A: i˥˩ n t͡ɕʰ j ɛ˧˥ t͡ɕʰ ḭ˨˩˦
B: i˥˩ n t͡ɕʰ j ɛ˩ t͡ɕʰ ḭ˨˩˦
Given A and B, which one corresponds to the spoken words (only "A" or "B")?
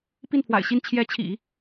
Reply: A